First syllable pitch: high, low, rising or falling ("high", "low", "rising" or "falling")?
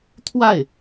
falling